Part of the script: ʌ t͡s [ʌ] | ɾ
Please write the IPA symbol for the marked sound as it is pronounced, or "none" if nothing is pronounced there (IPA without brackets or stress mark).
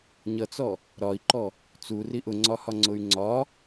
ɔ